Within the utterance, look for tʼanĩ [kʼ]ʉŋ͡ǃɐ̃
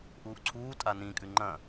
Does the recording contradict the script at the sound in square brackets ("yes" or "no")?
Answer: no